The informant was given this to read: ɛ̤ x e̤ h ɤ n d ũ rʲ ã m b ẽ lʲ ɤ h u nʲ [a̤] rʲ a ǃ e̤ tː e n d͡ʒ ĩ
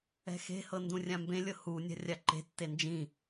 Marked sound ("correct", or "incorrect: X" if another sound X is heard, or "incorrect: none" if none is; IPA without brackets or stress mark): correct